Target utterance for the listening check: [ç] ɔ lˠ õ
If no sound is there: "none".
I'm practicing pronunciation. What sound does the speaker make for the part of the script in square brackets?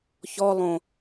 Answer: ç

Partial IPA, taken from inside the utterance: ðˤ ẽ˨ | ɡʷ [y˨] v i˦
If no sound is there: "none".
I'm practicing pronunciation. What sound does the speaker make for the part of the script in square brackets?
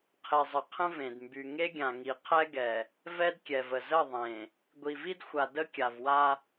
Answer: i˨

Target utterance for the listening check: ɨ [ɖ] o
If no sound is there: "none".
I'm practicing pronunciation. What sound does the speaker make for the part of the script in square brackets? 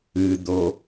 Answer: d̪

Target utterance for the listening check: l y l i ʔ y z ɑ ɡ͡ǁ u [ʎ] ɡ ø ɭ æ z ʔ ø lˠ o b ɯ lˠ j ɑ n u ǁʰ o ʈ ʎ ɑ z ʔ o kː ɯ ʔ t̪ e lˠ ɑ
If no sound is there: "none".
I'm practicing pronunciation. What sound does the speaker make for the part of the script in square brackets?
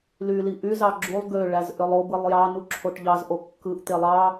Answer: lˠ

